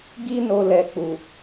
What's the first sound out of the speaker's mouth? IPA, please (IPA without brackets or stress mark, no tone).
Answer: ɡ